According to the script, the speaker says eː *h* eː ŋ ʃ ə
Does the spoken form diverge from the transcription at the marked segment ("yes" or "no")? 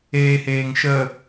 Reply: no